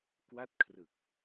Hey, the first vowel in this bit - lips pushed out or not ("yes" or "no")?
no